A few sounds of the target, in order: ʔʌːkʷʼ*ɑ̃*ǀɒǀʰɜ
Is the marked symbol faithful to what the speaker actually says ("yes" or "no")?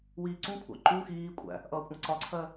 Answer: yes